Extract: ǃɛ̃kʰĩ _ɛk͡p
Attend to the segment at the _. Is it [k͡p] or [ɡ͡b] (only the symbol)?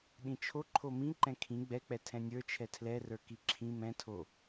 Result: ɡ͡b